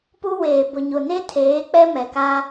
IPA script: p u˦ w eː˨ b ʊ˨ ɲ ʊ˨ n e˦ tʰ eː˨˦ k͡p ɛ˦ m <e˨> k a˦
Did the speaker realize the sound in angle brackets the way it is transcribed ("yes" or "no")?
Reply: no